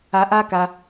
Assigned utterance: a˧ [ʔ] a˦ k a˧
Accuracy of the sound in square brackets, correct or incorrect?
correct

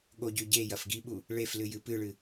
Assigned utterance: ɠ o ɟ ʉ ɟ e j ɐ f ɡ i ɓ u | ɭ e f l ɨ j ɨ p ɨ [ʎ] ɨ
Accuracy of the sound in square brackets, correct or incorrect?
incorrect: ɭ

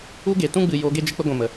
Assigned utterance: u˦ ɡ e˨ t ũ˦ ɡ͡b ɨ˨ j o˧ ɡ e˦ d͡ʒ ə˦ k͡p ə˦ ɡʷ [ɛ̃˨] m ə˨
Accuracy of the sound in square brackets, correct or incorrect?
correct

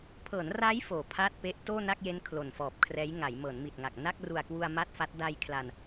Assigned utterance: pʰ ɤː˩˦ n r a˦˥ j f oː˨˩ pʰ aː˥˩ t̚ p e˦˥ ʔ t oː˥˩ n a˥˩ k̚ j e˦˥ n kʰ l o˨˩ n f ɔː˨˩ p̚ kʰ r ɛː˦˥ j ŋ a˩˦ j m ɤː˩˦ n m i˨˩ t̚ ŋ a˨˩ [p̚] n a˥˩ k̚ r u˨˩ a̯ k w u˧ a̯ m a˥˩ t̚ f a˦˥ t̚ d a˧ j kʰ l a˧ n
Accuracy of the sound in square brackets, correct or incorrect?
incorrect: k̚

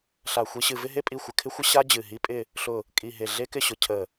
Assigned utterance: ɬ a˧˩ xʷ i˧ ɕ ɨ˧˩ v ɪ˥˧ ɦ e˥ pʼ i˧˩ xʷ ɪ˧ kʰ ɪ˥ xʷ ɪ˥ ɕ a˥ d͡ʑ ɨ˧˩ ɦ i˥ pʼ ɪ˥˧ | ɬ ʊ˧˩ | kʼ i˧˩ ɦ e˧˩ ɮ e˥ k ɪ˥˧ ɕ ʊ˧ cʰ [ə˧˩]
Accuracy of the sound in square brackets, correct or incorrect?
correct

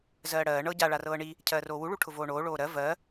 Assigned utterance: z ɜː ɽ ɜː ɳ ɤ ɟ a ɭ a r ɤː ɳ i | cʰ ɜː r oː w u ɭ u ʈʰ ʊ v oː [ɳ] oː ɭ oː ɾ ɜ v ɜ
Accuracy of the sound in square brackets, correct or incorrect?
correct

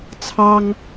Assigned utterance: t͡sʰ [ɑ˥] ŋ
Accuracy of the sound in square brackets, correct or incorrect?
correct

